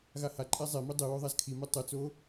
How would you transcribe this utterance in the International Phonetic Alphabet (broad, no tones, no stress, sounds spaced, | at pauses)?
ɣ a h a ǃʼ ɛ zˤ e m i dˤ i w o ðˤ a z kʰ i m e tˤ ɯ t͡s o